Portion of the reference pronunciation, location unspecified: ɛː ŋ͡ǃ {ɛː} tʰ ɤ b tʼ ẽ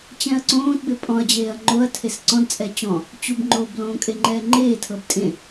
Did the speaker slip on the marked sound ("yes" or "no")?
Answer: yes